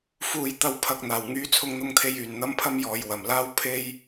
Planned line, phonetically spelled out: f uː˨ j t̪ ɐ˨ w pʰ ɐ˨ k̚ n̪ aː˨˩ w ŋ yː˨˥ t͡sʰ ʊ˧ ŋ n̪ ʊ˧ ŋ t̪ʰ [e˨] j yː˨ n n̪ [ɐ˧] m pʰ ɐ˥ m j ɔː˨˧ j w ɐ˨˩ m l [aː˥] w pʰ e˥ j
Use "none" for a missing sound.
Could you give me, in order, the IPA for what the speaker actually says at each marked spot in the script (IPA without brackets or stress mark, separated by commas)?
e˧, ɐ˥, aː˥